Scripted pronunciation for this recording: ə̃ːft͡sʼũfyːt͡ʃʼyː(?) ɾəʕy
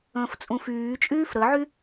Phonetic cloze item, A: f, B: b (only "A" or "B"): A